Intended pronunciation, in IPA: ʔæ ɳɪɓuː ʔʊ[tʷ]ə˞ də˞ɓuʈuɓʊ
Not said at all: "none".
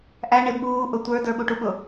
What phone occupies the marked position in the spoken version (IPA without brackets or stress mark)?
tʷ